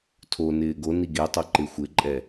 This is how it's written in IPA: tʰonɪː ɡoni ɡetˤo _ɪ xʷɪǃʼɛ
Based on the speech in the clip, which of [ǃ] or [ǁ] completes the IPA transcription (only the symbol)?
ǃ